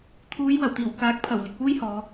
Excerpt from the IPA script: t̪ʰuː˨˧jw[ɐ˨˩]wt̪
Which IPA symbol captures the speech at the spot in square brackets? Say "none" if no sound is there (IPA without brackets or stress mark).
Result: ɐ˨˩